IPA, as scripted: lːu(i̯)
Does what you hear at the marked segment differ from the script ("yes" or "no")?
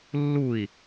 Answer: no